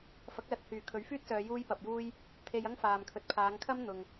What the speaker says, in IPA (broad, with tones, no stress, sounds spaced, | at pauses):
f ɐ˨˥ k̚ l ɐ˨ t̚ h yː˨˩ kʰ ɵ˨˥ ɥ f yː˥ t̚ s œː˨˧ j uː˥ j p ɐ˨ p̚ j uː˥ j | t̪ʰ e˧ j ɐ˥ ŋ f aː˨ m kʰ ɵ˨ t̚ pʰ aː˨˧ ŋ kʰ ɐ˥ m n̪ ʊ˨ ŋ